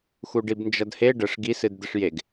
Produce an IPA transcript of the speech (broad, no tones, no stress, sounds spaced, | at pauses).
x u ɖ i b n d͡ʒ ʌ d h e ɖ ə ʂ ɡ i s ɨ d d̪ ə ʂ j e ɡ